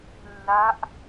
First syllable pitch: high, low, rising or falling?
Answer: rising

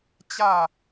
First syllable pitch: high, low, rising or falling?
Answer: falling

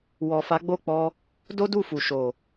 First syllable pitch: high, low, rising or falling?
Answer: low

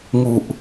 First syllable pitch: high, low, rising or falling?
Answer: low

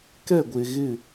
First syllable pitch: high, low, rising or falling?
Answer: falling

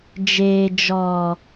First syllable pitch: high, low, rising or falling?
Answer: low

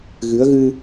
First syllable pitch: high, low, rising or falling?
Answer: rising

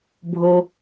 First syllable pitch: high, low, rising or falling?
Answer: low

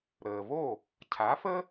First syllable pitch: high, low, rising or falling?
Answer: low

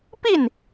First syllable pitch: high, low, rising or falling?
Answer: falling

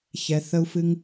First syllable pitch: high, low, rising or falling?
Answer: low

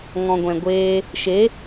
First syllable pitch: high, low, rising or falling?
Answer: low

